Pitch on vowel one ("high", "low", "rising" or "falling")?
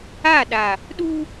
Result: falling